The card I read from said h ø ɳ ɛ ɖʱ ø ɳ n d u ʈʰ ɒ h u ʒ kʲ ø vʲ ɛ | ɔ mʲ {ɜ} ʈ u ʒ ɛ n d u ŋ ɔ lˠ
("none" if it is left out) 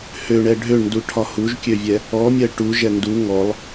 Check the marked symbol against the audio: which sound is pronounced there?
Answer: ɜ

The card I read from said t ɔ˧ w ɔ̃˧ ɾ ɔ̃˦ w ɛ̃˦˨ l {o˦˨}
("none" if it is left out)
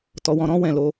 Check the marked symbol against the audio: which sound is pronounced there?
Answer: o˧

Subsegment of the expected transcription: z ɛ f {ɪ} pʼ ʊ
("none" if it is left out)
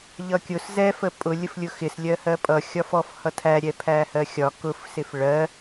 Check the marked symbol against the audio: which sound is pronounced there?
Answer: ə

